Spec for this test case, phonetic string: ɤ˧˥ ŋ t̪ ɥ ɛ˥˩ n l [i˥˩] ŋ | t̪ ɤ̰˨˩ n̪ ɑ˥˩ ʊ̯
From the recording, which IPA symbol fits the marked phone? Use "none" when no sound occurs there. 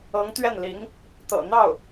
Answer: i˧˥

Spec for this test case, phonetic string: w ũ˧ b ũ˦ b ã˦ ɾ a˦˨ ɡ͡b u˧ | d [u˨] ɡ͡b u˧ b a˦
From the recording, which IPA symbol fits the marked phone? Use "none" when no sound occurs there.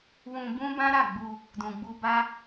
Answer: ũ˨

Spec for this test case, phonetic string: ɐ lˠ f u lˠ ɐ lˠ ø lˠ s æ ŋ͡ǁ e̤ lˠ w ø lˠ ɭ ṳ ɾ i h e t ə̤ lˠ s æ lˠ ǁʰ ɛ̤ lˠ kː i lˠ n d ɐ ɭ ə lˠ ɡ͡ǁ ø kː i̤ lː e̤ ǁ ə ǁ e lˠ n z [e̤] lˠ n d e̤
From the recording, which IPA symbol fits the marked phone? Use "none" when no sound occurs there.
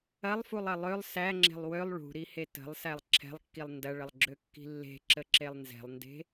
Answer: ɛ̤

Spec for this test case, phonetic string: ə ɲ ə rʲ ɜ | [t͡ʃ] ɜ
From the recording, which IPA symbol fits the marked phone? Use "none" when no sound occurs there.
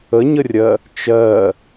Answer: t͡ʃ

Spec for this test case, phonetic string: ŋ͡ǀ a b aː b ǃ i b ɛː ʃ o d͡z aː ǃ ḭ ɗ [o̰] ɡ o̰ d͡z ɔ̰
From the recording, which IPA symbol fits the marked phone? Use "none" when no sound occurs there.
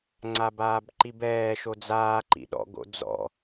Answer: ɔ̰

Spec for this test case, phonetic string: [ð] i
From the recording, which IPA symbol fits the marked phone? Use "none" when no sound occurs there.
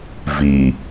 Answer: v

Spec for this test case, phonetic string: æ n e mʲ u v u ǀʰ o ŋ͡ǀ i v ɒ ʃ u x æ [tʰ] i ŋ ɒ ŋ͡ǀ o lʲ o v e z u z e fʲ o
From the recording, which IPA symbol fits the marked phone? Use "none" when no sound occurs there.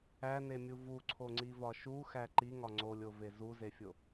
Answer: ǃ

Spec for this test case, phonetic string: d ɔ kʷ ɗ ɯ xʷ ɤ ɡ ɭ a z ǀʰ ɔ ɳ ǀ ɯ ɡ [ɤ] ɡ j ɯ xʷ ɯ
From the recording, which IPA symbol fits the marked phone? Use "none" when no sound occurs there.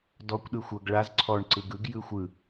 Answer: ɯ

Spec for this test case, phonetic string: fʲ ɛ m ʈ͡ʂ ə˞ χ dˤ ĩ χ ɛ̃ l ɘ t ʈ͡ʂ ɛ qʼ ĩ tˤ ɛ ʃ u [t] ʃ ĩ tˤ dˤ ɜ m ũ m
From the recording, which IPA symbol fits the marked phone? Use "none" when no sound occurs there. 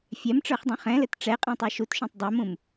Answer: t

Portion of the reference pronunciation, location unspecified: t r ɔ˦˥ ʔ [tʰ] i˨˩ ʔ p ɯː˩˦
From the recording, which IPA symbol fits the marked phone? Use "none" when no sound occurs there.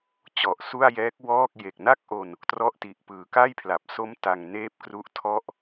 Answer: t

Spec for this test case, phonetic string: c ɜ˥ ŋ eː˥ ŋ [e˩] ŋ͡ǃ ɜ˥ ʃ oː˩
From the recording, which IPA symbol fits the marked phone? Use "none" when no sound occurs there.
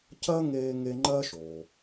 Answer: e˥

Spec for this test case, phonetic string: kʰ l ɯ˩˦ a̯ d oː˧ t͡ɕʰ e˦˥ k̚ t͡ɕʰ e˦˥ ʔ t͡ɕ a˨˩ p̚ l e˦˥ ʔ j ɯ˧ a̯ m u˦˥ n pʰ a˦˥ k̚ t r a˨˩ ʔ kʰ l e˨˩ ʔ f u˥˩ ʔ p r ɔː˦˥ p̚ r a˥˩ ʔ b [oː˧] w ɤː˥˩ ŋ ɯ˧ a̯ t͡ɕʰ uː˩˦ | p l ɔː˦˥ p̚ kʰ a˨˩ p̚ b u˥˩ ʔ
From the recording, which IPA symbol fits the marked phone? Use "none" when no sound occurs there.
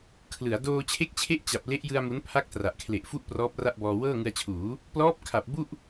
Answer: ɔː˧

